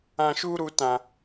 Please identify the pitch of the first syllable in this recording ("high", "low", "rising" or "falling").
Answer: low